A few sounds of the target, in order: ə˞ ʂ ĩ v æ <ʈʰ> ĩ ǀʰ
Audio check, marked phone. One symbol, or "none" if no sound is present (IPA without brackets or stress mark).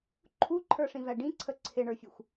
ɖ